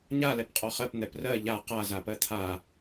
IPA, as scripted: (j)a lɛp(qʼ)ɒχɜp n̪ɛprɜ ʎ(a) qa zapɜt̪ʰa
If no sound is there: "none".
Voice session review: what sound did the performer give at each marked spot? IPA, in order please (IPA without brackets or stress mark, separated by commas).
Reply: ɲ, qʼ, a